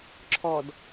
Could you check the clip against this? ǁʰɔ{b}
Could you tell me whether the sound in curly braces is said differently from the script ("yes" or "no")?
yes